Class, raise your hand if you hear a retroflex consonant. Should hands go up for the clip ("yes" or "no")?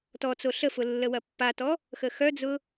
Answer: no